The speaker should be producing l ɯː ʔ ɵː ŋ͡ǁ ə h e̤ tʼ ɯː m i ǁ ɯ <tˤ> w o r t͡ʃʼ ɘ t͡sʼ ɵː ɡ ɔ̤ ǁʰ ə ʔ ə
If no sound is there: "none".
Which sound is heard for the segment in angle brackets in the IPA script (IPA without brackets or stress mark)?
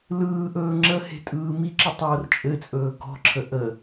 tˤ